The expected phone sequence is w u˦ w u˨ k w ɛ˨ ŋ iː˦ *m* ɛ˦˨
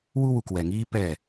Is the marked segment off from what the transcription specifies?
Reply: yes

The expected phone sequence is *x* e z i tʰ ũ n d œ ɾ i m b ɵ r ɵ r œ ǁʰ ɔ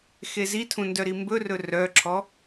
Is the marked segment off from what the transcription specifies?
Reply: no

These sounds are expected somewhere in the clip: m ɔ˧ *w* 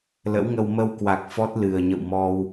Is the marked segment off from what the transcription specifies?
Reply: no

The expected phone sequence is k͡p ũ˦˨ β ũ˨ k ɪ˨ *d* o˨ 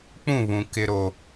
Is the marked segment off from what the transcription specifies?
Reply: yes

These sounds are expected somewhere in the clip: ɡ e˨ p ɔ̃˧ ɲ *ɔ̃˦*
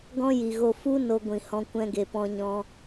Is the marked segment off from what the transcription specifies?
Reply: yes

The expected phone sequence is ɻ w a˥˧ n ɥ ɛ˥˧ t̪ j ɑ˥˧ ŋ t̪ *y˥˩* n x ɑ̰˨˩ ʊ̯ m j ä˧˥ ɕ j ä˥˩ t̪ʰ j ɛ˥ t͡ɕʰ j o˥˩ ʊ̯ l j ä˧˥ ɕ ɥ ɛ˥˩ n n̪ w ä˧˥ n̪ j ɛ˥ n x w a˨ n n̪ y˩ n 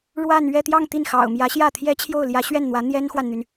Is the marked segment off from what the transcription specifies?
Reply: yes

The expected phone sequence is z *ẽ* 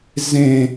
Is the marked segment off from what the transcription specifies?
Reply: no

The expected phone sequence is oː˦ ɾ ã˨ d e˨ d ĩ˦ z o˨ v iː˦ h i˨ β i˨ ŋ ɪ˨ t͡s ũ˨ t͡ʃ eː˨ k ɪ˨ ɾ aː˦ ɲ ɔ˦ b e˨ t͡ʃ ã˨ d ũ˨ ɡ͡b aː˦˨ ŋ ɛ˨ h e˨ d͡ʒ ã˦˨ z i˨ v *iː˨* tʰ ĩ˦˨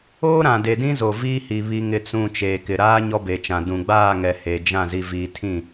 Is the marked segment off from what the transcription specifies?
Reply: no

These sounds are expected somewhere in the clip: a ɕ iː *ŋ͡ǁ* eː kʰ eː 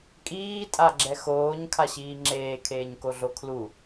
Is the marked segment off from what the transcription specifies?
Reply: no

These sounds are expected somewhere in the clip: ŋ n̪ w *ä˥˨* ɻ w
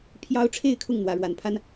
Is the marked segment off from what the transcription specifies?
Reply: yes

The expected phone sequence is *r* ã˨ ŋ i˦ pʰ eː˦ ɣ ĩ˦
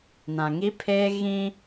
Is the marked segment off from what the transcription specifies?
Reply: yes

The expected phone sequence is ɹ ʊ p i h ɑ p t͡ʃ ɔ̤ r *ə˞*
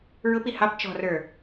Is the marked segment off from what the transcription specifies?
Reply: no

